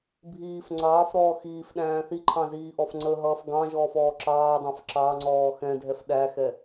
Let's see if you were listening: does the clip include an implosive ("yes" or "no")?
yes